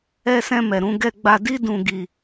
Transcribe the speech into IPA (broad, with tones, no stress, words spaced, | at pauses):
ɛ˧sɛ̃˧ mɛ˨ɾũ˧ ɡɛ˧ɡ͡ba˧ di˦dũ˧ɡi˧